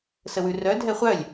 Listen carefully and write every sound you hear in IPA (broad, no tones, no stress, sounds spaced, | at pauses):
s ə w ʉ r œ dʱ ɛ χʷ œ lʲ